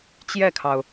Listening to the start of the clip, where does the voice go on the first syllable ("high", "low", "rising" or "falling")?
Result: falling